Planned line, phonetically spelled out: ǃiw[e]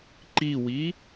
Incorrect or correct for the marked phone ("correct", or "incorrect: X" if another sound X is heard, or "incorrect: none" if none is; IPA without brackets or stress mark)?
incorrect: i